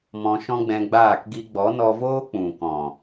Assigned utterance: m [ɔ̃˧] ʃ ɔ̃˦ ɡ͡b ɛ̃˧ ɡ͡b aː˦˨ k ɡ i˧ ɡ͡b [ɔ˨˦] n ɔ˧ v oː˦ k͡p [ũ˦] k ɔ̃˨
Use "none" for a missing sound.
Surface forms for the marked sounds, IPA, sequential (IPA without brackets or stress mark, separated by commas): ɔ̃˧, ɔ˨˦, ũ˨